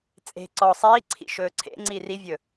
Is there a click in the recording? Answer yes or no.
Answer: yes